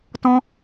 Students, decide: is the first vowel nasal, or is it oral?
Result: nasal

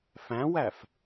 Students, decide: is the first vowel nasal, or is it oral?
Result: nasal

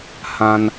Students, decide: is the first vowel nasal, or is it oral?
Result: nasal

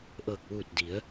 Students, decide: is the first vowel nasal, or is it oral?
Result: oral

